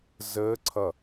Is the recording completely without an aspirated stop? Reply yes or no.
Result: no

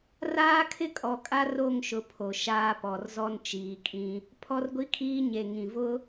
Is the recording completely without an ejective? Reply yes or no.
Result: no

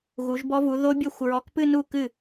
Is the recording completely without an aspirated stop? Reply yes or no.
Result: yes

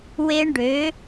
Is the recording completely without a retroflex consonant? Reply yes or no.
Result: no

